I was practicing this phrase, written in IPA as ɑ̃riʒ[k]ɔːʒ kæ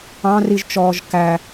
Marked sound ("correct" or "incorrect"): incorrect